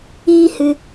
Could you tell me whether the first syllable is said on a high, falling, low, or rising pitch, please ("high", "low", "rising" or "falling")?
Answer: high